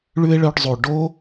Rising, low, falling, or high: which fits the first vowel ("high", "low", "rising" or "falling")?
high